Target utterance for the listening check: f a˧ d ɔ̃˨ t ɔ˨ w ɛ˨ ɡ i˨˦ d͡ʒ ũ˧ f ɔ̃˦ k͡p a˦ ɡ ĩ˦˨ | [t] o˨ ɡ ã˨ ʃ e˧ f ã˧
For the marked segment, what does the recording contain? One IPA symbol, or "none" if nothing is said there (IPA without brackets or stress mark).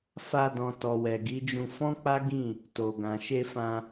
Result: t